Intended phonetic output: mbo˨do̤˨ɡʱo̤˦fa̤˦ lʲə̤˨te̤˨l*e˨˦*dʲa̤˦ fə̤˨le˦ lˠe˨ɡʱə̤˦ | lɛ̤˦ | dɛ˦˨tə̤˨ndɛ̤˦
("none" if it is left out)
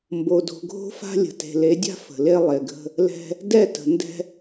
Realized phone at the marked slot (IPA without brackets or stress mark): e˨˦